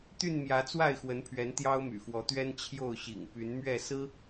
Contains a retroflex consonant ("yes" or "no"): no